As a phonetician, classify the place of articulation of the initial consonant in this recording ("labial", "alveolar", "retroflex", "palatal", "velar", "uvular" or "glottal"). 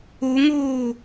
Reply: velar